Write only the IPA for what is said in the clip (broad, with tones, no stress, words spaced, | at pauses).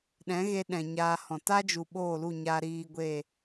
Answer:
ɗɛ̃˨˦ɣe˧ ɗɛ̃˨ɲaː˧hɔ̃˨ ta˦d͡ʒu˨ ɓoː˦˨lu˦˨ɲa˧ ɾiː˧ɡʷe˦˨